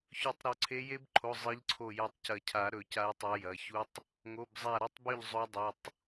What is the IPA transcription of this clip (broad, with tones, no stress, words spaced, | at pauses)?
çɵ˨˩˦tˤɾo˨˩˦ ǀʰe˨˦je˦˥bǃʰo˩˧˩ zˤɨ˨˦ʎǀʰo˧˩ jɐ˧˩tˤcɐ˨˩˦cʰa˨˩˦ ɾɵ˨˩˦ca˨˦jtˤa˨˦ jɐ˩˧˩çu˦˥tˤ | ŋo˩˧˩bzˤa˧˩ɾɐ˦˥tˤbɵ˥˨ʎ zˤo˦˥dˤu˩˧˩tˤ